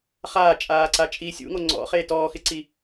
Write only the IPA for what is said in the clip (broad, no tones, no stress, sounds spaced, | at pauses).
χ aː t͡ʃʼ aː ǀ a t͡ʃʼ i sʲ ṵ ŋ o ŋ͡ǀ ɔ̰ χ eː t ɔː x ɪ ǀ i